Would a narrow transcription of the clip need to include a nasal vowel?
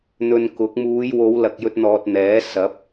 no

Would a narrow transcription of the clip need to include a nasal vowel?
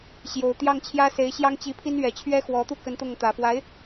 no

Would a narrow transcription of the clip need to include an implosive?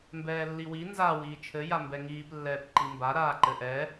no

